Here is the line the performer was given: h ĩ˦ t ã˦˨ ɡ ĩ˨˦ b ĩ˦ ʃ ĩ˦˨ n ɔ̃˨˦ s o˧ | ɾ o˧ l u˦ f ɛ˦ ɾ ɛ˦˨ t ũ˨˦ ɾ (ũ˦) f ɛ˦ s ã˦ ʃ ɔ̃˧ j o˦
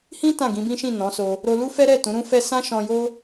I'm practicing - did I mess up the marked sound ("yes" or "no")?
no